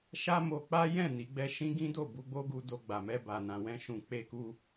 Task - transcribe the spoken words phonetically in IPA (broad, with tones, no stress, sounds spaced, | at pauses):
ʃ a˦ m o˧ k͡p a˦ j ɛ̃˦˨ n i˨˦ ɡ͡b ɛ˦ ʃ ĩ˦ ɡ ĩ˦ d o˦˨ b u˨˦ ɡ͡b o˦ ɡ u˧ d o˧ ɡ͡b a˨ m ɛ˧ b a˨ n ã˨ w ɛ̃˧ ʃ ũ˨ k͡p e˧ k u˧